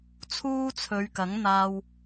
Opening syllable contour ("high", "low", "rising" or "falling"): high